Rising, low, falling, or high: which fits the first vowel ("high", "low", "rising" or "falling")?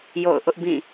falling